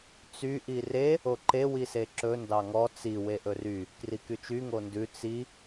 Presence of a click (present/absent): present